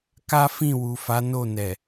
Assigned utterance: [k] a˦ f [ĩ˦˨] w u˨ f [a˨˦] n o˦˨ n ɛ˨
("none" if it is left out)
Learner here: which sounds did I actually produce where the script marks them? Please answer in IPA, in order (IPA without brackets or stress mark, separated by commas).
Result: k, ĩ˦˨, a˨˦